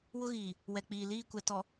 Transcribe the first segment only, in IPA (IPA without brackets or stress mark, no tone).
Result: w